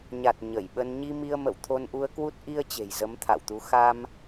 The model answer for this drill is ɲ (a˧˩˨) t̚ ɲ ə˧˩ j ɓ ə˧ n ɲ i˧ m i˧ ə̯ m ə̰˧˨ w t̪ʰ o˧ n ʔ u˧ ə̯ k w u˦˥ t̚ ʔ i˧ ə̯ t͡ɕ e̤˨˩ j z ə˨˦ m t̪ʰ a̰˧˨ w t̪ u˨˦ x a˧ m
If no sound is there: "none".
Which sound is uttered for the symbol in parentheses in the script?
a˨˩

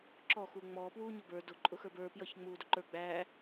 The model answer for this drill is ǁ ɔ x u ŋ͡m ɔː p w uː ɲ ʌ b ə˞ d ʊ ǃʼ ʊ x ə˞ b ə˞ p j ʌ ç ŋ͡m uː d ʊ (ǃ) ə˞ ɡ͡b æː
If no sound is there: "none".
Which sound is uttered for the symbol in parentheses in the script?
ǃ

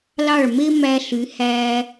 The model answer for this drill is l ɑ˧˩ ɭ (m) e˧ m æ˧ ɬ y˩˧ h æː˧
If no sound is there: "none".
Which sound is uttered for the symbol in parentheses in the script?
m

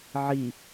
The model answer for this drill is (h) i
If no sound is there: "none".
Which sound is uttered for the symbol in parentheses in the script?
ʕ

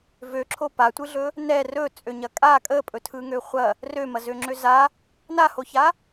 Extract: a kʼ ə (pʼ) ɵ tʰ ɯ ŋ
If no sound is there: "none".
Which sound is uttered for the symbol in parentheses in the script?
pʼ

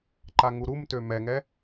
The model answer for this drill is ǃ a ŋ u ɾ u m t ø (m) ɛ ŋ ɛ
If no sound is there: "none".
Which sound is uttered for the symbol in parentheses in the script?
m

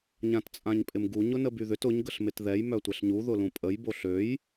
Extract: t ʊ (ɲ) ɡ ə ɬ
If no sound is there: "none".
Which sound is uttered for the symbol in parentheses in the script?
ɲ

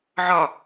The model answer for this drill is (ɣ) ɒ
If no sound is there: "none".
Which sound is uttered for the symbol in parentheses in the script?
ʕ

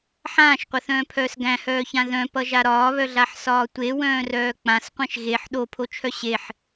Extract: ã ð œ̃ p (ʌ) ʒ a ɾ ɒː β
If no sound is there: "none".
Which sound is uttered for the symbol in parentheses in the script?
ʌ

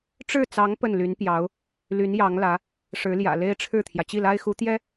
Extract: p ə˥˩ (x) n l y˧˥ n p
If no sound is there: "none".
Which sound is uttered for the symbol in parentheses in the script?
none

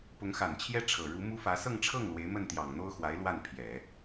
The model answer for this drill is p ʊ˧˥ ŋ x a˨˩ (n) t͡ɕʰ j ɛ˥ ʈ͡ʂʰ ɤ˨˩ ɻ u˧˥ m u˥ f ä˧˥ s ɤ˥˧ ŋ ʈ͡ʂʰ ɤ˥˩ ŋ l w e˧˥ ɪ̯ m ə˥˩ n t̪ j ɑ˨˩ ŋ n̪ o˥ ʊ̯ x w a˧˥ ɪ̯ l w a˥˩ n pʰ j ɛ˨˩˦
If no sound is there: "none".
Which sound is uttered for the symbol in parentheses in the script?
n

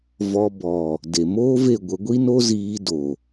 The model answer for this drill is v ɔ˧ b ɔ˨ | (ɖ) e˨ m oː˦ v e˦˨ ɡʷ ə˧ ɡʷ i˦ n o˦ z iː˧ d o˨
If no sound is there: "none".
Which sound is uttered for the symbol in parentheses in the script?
d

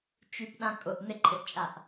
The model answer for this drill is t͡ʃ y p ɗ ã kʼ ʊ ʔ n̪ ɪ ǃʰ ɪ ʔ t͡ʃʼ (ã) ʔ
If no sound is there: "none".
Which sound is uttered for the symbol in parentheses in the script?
a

